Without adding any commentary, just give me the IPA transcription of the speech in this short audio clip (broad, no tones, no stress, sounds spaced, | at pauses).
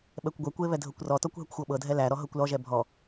ɓ ɛ kʷ ɡʷ ɛ kʷ e β ɛ dʱ ɤ kʷ r ɔ t ɔ kʷ ɦ ɛ kʷ xʷ ɤ ɓ ɤ dʱ ɛ l æ ɾ ɔ ɦ ɤ kʷ l ɔ ʒ ɛ bʱ ɔ